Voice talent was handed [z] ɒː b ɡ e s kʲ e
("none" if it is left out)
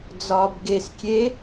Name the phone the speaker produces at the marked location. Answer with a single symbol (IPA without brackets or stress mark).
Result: d͡z